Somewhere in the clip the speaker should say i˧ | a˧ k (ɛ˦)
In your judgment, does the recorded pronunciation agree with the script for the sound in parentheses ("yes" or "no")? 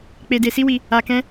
no